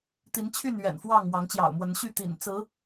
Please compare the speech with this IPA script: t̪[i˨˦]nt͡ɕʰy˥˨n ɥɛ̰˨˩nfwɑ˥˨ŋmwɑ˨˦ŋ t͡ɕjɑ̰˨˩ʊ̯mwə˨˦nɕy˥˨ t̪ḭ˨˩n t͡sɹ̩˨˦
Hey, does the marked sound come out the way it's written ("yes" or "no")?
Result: yes